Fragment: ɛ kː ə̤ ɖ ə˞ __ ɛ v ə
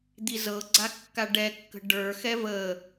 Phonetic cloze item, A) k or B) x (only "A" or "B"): B